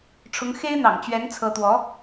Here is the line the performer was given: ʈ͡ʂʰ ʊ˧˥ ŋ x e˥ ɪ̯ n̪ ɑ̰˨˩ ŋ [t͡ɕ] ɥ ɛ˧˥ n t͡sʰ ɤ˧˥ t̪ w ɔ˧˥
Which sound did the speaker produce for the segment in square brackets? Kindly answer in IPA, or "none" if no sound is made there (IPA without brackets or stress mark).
t͡ɕ